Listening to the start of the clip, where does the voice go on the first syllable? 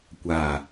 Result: low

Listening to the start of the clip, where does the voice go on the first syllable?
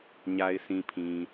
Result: low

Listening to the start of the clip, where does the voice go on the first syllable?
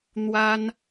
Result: high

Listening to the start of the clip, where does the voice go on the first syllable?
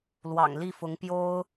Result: low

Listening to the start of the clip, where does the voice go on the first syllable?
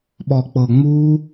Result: low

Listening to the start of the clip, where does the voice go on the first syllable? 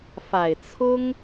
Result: low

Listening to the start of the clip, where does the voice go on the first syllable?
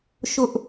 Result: high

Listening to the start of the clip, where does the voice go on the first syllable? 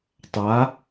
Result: rising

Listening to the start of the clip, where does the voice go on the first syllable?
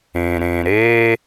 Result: low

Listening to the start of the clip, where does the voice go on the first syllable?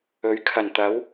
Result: rising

